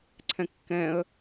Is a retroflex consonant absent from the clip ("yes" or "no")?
yes